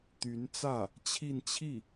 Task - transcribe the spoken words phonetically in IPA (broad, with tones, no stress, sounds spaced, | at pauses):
t̪ y˧˥ n t͡s ä˥˩ | t͡ɕʰ i˥˧ n t͡ɕʰ i˥˩